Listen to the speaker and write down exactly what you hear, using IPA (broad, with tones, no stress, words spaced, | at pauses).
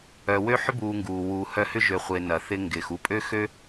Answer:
œ˨wø˥ ħʏ˥buː˨ŋɡuː˩ wuː˨hœ˦ hʏ˥ʒø˨χʷɪː˨ nɐ˩θɪ˦ ŋɡɪː˩xu˦pʼø˥xø˥